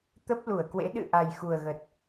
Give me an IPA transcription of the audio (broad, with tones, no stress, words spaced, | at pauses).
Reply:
t̪ə˦˥p̚lu˧˩ə̯kwḛ˧˥ ɗɨ̰˧˨ ʔa˨˩jxu˨˩ə̯ɣə˨˩t̚